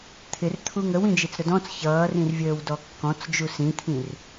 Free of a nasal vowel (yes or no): no